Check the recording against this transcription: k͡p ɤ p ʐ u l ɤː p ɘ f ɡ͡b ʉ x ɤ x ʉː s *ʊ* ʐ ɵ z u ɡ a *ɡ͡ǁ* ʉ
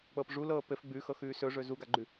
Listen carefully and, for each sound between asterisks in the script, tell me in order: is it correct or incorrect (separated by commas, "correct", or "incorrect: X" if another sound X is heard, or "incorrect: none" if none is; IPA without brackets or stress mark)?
incorrect: ɵ, incorrect: ɡ͡ǃ